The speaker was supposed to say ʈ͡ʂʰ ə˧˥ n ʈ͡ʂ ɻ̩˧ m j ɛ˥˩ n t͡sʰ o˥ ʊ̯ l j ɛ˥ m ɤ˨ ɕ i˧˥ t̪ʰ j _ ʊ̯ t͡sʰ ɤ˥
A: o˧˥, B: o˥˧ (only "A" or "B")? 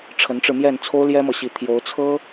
A